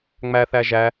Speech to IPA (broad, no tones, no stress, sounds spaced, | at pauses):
ŋ͡m æ θ æ ʒ æ